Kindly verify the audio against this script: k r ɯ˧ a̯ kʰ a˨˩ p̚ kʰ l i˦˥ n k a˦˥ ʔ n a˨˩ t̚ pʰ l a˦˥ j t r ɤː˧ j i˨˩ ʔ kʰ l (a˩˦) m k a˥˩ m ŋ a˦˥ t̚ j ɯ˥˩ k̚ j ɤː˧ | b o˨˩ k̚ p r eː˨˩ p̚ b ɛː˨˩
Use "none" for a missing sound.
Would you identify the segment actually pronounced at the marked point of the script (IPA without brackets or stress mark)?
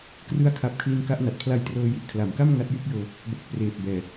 a˩˦